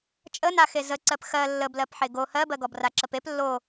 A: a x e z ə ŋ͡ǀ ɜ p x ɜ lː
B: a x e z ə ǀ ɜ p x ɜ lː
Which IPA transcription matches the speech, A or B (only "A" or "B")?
B